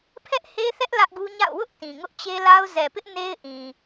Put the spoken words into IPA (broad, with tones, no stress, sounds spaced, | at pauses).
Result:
pʰ ɛ˦ ʔ h e˦ θ ɛ˦ ʔ l ä˦ ʔ ɡ u˦ ɲ a̰˦˨ ʊ̯ w ʊ˦ ʔ t ĩ˨ ŋ ʊ˦ ʔ t͡ɕ e˦ l a˦ ʊ̯ z ɛ˨ p ɪ˦ ʔ n e˦ ɪ̯ ʔ ĩ˨